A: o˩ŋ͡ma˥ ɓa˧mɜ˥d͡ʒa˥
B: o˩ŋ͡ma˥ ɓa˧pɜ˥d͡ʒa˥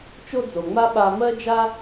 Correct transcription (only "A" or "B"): A